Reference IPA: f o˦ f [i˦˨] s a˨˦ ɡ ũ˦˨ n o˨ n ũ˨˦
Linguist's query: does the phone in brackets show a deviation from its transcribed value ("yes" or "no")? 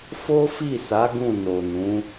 no